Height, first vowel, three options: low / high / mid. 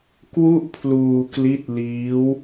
high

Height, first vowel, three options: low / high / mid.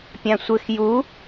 low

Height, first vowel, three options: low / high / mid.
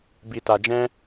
high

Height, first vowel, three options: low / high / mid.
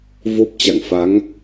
mid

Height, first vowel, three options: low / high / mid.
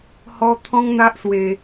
mid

